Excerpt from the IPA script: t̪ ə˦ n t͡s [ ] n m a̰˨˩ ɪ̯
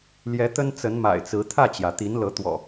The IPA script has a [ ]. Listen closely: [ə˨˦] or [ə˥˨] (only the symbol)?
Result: ə˨˦